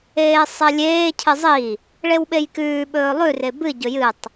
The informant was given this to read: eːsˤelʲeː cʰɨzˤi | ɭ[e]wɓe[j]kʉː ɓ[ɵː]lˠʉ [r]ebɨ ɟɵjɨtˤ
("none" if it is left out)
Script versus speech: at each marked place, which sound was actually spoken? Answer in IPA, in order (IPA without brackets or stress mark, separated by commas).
e, j, ɵː, r